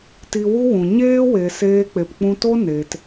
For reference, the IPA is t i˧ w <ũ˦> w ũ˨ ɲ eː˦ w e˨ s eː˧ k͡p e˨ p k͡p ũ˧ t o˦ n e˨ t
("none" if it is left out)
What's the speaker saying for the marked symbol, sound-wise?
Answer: u˦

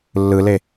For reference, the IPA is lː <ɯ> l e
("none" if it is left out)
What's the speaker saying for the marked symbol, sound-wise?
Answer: ɯ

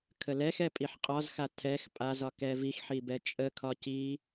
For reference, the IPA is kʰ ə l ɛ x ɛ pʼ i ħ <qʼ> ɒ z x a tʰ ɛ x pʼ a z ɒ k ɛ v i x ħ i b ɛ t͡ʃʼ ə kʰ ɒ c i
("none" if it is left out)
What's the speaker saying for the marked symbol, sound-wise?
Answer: qʼ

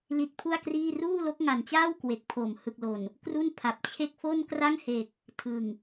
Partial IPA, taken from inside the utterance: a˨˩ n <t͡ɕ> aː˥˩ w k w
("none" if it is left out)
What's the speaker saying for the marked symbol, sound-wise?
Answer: t͡ɕ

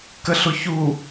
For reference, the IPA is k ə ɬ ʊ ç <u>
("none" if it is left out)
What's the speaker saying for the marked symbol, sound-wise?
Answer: u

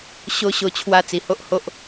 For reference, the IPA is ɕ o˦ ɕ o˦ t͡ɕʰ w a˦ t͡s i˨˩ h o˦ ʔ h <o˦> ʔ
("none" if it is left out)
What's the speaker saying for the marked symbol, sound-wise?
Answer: o˦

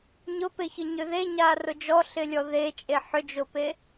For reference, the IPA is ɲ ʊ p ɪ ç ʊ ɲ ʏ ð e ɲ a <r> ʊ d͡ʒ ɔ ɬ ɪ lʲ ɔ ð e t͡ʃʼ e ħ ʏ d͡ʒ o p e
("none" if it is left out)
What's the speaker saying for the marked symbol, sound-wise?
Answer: r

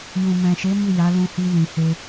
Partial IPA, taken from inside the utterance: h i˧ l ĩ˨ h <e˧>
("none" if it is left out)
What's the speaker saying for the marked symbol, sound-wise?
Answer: e˧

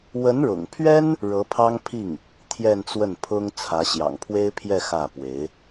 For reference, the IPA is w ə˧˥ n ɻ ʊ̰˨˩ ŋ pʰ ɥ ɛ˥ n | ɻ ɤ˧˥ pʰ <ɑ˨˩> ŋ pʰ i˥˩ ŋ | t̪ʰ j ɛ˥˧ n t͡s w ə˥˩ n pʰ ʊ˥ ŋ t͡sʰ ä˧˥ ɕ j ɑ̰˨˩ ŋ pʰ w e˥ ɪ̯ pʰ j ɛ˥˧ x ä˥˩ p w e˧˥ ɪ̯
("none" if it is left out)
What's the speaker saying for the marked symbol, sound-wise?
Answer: ɑ˥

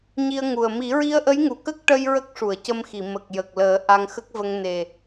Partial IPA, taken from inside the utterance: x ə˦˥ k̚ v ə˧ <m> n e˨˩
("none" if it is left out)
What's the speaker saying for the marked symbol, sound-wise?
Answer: ŋ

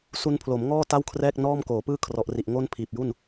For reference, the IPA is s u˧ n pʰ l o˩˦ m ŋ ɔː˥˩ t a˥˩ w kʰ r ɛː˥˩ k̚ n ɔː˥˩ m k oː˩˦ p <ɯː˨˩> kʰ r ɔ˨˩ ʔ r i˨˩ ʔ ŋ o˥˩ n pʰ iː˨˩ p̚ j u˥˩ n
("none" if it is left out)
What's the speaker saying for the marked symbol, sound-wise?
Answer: ɯː˥˩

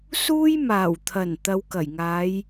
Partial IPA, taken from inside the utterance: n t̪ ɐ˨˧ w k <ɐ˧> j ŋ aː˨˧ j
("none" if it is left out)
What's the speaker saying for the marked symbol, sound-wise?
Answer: ɐ˨˩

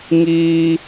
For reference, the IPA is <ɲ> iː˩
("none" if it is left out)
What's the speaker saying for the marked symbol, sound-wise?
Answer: ŋ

